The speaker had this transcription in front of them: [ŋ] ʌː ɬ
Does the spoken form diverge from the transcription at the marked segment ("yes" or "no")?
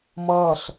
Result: yes